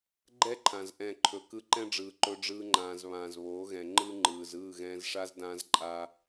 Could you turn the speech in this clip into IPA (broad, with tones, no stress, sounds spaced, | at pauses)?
ɡ͡ǃ ɛ˦ ǃʰ ã˨ z ʔ ɛ̃˦˨ ǃʰ ɵ˧ k ɯ˧ ǃ ɛ̃˦ ɖ͡ʐ ɯː˨ ǃ ɵ˧ ɖ͡ʐ ɯː˧ ŋ͡ǃ ãː˨ z β ãː˨ z β oː˨˦ ɣ ɛ̃˨ ŋ͡ǃ ɯ˦ ŋ͡ǃ ɯː˨ z ɯː˦˨ ɣ ɛ̃ː˧ z ʂ a˦ z d ãː˦ z ǃʼ a˦